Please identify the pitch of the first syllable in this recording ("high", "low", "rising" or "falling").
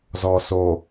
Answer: low